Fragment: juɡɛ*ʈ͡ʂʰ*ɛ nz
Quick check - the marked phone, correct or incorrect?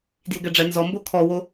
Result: incorrect